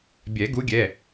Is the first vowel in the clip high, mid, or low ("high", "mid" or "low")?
mid